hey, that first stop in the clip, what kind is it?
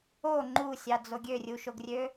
click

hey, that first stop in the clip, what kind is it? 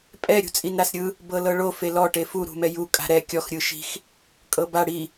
ejective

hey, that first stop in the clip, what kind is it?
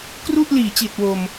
plain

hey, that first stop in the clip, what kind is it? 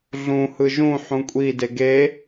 ejective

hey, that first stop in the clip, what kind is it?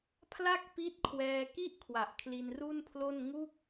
aspirated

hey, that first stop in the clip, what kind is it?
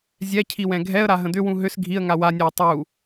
aspirated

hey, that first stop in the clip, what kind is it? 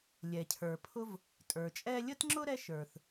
aspirated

